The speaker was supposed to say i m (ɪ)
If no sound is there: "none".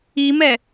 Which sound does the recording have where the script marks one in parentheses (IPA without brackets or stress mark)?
ɛ